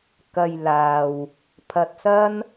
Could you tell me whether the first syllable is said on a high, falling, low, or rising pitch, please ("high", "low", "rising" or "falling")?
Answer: low